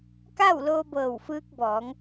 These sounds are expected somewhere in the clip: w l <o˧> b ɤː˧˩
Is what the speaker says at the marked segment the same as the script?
no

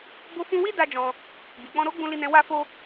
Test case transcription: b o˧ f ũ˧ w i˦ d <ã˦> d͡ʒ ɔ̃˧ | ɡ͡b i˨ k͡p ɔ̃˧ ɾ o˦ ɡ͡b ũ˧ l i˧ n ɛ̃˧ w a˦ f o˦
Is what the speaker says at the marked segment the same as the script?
no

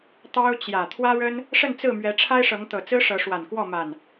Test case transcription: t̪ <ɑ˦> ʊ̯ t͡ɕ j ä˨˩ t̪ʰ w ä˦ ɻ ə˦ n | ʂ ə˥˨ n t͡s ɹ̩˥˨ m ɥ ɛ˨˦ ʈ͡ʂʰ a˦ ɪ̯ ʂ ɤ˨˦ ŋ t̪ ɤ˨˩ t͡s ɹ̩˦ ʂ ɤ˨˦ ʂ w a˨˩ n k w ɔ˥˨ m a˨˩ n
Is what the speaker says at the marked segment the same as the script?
yes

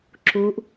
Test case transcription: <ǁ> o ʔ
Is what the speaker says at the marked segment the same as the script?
yes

